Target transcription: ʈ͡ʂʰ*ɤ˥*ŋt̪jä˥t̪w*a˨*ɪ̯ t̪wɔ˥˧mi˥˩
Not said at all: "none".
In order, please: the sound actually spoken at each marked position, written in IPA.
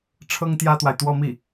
ɤ˥, a˨

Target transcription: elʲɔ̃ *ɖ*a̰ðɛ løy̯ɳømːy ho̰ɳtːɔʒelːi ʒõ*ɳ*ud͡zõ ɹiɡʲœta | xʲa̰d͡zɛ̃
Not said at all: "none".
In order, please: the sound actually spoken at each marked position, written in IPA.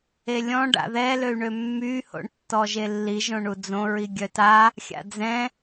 ɖ, ɳ

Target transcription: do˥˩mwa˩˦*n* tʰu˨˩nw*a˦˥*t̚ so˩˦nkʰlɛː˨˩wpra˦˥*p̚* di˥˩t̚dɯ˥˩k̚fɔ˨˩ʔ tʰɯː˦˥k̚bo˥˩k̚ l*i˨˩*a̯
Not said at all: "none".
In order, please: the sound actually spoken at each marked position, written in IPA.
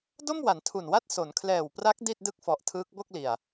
n, a˥˩, k̚, i˨˩

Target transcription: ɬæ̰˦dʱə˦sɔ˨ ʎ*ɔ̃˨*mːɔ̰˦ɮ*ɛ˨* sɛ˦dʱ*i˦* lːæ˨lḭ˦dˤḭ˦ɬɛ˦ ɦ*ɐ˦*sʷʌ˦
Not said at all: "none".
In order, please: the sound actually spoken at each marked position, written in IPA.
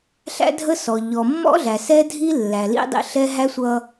ɔ˨, æ˨, i˦, æ˦

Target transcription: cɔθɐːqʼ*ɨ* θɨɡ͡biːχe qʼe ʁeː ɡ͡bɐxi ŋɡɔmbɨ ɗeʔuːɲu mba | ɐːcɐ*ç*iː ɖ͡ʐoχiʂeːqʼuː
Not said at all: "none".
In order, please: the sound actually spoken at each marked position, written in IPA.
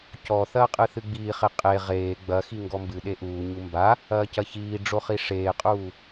ɨ, ç

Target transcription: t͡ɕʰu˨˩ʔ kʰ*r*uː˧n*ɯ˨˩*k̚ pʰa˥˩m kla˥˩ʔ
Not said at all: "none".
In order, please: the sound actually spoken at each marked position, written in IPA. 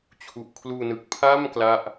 l, ɯ˨˩

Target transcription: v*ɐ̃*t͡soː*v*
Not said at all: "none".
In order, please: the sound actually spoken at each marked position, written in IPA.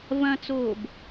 ɐ̃, b

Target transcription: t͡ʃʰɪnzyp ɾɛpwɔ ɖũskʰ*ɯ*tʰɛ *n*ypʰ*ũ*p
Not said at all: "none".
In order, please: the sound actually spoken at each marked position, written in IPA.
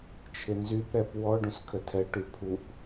ə, ʈ, u

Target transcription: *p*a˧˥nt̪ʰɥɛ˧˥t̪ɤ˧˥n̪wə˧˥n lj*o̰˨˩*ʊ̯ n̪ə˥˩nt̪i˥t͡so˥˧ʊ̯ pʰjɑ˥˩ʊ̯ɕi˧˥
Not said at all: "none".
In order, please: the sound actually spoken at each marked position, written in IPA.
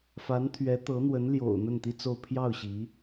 f, o̰˨˩

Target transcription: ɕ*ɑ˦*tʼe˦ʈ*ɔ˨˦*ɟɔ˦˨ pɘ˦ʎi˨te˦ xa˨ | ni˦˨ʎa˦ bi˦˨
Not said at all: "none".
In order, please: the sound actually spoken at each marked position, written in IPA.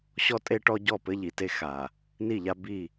ɔ˦, ɔ˦

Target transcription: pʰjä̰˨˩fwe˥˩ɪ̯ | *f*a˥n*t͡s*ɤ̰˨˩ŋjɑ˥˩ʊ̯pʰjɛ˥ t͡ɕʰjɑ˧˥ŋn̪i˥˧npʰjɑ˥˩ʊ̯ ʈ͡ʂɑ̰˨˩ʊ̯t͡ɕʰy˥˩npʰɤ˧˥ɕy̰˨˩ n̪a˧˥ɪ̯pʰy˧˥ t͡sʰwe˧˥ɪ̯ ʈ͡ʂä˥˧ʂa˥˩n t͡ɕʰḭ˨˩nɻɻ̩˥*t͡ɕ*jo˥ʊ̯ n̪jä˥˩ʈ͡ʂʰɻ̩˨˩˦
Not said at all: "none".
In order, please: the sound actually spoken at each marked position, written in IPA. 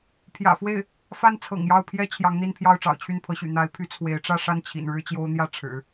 f, t͡sʰ, t͡ɕ

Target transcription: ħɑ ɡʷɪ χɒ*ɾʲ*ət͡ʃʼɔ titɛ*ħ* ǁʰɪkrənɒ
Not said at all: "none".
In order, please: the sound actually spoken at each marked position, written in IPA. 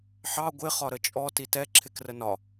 ɾ, none

